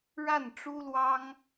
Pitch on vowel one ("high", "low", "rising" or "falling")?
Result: falling